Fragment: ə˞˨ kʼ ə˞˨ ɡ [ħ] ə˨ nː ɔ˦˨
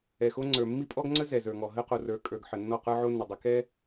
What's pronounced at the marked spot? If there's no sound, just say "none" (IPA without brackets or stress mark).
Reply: ħ